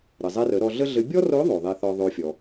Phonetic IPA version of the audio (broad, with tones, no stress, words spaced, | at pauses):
ɾɘ˩zˤɛ˧rə˩˧ ɾɔ˧ɮə˥ɮɘ˧˥ bʲɔ˥ro˧˥ðˤo˩ ðˤɛ˧θɔ˧ ðˤo˧fʲɔ˩